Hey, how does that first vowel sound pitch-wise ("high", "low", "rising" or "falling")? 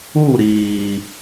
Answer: falling